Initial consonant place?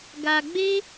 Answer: velar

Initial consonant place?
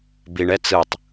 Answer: labial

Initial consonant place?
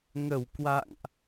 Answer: velar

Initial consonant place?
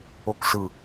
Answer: velar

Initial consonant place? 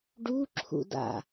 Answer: retroflex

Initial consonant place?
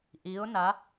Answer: glottal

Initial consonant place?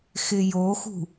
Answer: velar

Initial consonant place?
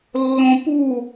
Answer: alveolar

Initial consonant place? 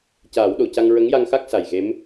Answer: palatal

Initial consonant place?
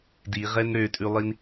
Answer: alveolar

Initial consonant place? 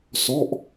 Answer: alveolar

